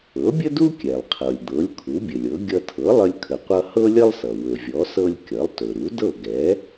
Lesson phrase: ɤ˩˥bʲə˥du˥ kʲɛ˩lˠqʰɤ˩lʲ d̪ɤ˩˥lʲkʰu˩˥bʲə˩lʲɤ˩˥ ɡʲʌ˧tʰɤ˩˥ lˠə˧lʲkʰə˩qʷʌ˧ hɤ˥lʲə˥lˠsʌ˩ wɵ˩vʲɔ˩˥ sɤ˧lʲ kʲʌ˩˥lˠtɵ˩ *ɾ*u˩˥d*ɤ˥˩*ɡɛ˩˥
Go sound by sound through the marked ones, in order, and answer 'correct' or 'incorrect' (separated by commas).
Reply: correct, correct